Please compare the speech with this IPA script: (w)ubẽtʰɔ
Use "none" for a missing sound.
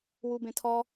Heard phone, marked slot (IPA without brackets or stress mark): w